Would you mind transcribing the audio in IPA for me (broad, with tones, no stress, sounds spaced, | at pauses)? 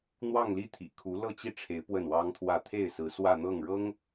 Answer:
n̪ w ɑ˥˧ ŋ l i˥˩ t̪ʰ ḭ˨˩ kʰ u˧˥ l ɤ˥˧ t͡ɕ i˥˩ ʈ͡ʂʰ e˧˥ ɪ̯ p w ə˥˩ n w ɑ˥ ŋ t̪ʰ w ä˥˧ t̪ʰ e˥˩ ɪ̯ s ɹ̩˧˥ s w ä˥˧ n̪ ɤ˥˩ ŋ ɻ ɤ˥ ŋ